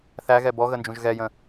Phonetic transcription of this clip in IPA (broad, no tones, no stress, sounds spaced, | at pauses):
θ æ ɣ ɛ b ɔ ɣ ə n d͡ʒ ũ ʒ ɣ ɛ j ə̃